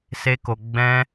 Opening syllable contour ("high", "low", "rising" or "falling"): high